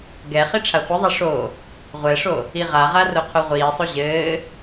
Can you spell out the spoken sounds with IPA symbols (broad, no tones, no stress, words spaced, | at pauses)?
ɡɛ χiʈ͡ʂʰaχʷiðˤɛ ʂo | ʁʷɛʂo | iʁaʁa roqʰoʁʷiːsˤo ʑɘː